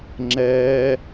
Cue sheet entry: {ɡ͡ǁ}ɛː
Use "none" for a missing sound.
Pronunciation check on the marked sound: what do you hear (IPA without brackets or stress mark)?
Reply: ŋ͡ǁ